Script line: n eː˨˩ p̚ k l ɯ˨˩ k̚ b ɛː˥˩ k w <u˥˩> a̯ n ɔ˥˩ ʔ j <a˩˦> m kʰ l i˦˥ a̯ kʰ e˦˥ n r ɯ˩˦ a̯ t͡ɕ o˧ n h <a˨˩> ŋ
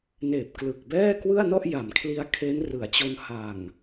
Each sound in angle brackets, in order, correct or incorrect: incorrect, correct, correct

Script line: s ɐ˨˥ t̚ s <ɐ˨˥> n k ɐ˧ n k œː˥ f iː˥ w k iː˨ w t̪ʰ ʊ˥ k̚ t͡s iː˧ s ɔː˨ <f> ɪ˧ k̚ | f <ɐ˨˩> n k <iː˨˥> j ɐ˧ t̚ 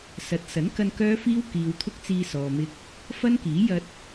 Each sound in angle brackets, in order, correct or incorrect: correct, incorrect, incorrect, correct

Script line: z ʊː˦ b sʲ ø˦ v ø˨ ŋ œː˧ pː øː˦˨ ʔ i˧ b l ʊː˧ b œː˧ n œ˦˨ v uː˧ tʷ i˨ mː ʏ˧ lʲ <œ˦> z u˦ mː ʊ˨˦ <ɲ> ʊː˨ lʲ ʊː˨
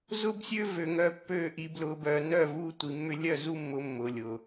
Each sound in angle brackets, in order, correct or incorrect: incorrect, incorrect

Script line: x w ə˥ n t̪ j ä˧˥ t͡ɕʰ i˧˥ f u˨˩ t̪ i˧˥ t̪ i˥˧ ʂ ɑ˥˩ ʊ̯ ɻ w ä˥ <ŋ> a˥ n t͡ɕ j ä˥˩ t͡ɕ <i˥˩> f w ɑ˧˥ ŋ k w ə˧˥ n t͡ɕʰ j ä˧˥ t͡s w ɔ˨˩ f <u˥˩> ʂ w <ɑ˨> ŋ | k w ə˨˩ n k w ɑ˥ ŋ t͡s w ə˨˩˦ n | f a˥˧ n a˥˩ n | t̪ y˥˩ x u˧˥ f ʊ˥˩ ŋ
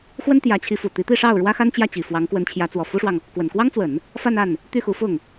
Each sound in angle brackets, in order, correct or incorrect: incorrect, incorrect, incorrect, correct

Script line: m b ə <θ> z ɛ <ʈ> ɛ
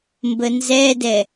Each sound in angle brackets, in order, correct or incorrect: incorrect, incorrect

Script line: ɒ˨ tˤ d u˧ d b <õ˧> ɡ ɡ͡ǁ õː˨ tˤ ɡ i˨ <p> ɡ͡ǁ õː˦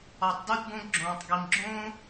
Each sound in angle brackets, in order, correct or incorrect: correct, incorrect

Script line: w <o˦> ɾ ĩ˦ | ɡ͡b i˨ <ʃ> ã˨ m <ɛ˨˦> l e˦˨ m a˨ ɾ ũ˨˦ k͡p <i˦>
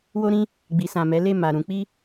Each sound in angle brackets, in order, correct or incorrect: correct, incorrect, correct, correct

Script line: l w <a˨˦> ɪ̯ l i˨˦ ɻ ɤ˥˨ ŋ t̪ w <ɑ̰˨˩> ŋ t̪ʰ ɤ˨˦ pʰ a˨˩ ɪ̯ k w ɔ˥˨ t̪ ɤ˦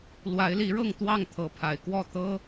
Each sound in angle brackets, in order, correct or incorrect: correct, incorrect

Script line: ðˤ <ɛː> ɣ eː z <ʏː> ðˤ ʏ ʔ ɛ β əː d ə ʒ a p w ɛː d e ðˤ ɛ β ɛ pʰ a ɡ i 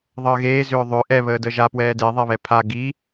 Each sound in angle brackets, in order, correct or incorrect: incorrect, correct

